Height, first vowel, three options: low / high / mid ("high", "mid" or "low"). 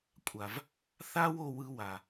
low